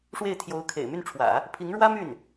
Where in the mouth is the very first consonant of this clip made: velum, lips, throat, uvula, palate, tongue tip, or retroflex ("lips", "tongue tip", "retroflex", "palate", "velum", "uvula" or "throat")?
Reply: retroflex